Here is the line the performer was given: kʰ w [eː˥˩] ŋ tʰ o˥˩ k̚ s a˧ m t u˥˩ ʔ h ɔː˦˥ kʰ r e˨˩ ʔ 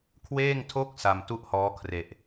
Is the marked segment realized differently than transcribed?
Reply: no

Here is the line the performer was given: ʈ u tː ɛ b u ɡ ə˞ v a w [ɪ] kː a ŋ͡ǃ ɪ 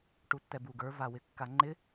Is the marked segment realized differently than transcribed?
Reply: no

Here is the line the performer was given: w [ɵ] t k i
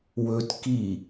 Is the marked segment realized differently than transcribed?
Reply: no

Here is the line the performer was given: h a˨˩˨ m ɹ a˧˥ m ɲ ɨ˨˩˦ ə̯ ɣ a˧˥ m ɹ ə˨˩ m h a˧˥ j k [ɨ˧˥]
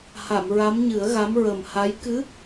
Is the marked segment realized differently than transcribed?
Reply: no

